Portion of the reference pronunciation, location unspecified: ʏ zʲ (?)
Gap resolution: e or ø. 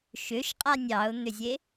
e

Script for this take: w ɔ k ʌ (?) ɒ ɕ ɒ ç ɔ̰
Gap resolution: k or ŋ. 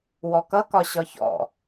k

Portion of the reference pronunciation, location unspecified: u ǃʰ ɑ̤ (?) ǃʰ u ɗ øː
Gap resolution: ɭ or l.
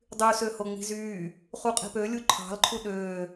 l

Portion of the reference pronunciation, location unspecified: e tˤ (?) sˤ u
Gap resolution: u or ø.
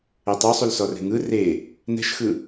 ø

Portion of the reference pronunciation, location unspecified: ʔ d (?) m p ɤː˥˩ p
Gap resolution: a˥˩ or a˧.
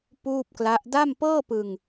a˥˩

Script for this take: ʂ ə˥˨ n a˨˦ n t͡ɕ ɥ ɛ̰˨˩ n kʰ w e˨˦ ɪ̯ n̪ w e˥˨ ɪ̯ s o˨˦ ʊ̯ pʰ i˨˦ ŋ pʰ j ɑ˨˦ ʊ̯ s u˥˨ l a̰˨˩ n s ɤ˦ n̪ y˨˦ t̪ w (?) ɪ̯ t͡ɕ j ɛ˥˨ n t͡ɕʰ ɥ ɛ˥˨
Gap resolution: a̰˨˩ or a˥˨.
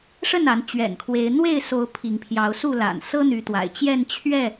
a̰˨˩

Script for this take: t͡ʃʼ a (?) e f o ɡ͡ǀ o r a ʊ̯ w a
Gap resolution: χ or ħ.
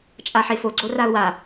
ħ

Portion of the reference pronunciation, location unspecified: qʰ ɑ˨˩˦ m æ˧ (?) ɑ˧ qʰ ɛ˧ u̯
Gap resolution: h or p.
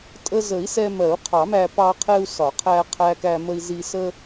p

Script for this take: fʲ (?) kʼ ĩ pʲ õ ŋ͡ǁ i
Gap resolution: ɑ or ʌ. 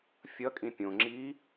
ʌ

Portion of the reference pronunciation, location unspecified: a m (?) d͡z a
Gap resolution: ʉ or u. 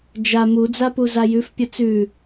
u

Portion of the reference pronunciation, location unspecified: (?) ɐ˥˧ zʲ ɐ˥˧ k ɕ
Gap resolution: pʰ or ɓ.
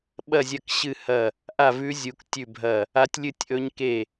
ɓ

